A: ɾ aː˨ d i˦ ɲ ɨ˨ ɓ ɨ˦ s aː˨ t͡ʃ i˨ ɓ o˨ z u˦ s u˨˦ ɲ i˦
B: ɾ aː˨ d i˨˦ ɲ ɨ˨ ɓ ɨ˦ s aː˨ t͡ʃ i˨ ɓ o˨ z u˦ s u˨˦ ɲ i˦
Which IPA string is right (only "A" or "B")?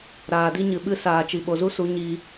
A